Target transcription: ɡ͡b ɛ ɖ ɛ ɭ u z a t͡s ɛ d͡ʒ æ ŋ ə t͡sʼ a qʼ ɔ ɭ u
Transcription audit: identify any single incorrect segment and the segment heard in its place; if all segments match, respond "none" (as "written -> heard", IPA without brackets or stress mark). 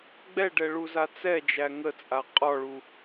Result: none